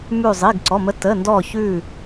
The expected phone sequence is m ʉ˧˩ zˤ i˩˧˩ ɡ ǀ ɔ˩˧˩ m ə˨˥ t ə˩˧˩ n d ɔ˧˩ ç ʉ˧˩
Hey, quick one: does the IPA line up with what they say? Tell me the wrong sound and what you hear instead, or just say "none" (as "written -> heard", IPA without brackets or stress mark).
none